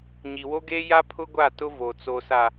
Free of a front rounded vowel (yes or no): yes